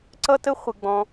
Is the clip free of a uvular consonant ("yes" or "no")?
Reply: no